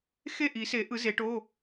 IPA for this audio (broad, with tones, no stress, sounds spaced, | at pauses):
x e˥˩ ʔ i˨˩˦ s e˨˩˦ ʔ ɯ˨˩˦ z e˨˩˦ ʈ o˧˥˧